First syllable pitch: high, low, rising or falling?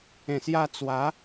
low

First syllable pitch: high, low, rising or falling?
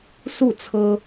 falling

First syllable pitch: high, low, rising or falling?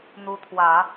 rising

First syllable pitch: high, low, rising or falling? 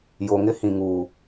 low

